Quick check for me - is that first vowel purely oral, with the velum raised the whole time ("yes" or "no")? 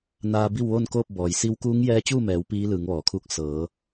yes